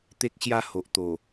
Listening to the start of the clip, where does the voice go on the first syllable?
high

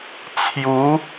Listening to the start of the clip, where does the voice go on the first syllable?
rising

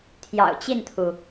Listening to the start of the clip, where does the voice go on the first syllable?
low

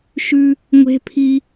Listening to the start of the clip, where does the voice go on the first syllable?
high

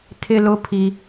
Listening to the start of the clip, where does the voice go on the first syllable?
high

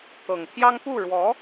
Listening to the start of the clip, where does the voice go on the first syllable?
low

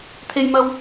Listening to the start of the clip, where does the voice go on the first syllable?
high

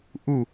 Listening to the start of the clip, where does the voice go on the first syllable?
falling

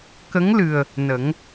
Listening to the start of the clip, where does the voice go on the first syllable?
rising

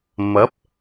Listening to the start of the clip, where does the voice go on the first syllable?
rising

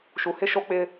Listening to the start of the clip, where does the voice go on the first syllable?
low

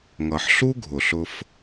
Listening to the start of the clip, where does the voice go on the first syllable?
low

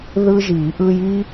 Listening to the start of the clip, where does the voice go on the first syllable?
high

